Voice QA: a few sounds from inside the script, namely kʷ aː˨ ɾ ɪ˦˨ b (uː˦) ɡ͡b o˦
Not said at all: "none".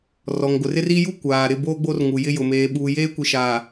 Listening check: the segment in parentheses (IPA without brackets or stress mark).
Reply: oː˦